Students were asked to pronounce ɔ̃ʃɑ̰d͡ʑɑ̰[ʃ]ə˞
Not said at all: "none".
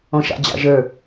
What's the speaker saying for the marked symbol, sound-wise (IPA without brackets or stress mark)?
ʒ